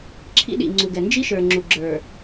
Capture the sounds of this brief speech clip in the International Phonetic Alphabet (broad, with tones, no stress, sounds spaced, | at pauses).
ǁʰ ḭ˦ ɗ ḭ˨ ŋ͡ǀ u˨ ɡ ɛ˨ n d͡ʒ i˦ ʃ ə˞˨ ŋ͡ǁ u˨ ɡ͡ǁ ə˞˨